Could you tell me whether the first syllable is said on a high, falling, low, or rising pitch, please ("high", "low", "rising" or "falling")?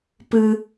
high